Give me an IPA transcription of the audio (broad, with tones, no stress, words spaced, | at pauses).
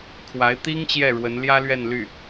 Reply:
kʰwa˧˥ɪ̯t̪i˥ŋ t͡ɕjɛ˥˩ɻwə˧˥n ljä˥lɥɛ˥˧n ly˥˩